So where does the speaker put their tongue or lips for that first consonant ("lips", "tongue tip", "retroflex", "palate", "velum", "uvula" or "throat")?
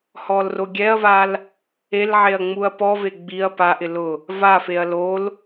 throat